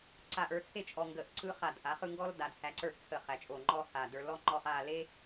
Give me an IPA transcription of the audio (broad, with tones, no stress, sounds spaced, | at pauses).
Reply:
ǀ a˧˩ ʔ ə˞˧ t͡sʰ e˥˧ t͡ʃʼ ɔ˧ ŋ ɡ ə˧˩ ʔ ǀ ɯ˥ χ a˧˩ d ʔ a˩˧ χ ɯ˥˧ ŋ ɡ ɔ˥ l d a˩˧ d h æ˧ ǀ ə˞˥˧ ʔ t͡sʰ ə˧˩ χ æ˩˧ t͡ʃʼ o˧˩ ŋ͡ǃ ɔ˥˧ h a˧˩ d ə˞˧ l ɔ˥ ŋ͡ǃ ɔ˥˧ χ a˥˧ l e˥